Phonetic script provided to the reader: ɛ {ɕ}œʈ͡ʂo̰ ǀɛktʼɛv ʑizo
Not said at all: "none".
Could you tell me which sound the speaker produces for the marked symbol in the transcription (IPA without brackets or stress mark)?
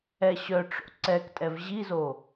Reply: ɕ